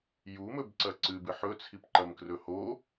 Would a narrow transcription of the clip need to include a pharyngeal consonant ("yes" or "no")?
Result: yes